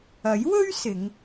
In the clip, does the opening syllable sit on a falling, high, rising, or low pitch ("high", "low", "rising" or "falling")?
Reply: rising